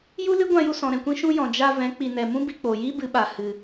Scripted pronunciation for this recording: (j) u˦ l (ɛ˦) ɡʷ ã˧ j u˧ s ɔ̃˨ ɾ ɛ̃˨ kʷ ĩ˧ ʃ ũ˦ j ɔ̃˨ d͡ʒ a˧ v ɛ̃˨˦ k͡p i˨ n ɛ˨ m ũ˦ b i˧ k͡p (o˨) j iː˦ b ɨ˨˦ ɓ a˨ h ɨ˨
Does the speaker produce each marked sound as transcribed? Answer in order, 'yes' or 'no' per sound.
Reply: yes, no, no

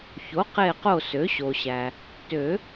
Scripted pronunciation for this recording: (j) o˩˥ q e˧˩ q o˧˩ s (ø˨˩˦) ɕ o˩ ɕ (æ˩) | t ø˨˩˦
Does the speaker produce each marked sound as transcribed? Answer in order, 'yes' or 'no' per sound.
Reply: no, no, yes

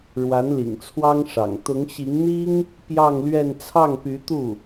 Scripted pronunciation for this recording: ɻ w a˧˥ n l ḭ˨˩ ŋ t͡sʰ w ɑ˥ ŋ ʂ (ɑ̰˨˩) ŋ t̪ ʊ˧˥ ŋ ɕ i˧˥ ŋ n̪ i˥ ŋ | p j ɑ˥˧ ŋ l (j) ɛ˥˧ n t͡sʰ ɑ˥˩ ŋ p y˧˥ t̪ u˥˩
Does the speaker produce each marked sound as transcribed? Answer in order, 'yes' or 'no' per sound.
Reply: yes, no

